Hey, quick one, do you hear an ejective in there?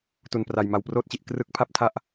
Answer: no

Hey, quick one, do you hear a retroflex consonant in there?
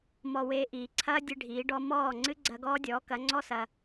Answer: yes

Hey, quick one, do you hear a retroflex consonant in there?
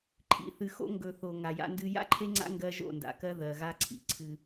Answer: no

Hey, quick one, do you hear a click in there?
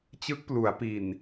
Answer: no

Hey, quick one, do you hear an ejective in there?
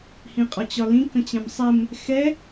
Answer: yes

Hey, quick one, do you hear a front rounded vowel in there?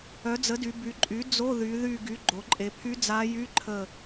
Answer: yes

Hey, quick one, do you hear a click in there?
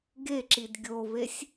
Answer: yes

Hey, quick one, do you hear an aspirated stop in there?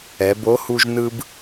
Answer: no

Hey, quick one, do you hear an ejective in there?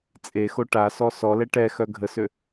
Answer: yes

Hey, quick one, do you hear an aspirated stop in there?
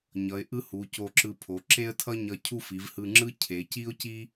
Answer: yes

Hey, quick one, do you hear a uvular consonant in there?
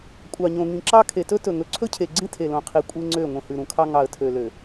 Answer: yes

